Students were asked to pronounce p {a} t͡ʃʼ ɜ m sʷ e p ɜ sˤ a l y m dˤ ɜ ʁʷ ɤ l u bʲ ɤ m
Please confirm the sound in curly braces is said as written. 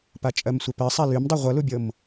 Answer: yes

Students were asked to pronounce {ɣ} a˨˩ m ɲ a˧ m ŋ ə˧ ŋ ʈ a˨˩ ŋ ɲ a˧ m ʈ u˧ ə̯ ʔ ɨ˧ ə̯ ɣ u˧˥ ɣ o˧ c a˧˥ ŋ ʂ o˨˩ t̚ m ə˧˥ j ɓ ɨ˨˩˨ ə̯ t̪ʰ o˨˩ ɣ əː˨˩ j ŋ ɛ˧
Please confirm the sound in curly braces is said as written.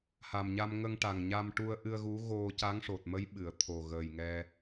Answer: no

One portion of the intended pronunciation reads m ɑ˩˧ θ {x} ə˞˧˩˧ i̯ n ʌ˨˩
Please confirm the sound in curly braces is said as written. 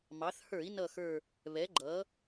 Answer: no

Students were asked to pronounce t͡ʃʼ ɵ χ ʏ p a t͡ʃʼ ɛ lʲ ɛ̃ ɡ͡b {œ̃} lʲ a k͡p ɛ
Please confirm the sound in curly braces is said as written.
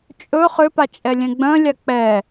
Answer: yes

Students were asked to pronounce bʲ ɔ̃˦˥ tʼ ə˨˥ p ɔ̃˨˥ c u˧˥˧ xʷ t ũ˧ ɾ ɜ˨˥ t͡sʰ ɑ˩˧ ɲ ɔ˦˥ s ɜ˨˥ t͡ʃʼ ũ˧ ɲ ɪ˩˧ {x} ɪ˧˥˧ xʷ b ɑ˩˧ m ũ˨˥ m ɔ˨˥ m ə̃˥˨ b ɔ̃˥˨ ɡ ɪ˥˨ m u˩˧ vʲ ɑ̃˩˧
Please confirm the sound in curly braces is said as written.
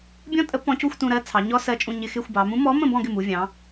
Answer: yes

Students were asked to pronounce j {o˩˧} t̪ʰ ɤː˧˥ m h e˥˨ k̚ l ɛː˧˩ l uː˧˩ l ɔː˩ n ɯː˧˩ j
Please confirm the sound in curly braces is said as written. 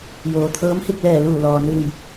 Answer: no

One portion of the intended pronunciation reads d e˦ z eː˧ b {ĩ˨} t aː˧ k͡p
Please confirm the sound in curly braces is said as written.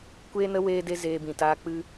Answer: yes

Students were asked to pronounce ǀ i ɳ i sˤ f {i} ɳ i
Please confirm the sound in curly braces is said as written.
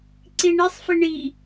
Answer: yes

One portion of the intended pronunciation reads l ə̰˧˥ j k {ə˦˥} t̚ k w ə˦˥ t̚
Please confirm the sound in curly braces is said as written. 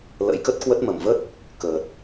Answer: yes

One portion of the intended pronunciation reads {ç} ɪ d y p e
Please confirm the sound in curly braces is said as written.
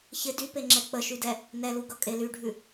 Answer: yes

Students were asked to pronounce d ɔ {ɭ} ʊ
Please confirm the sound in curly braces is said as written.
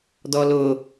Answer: no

